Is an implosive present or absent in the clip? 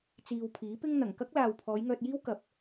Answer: absent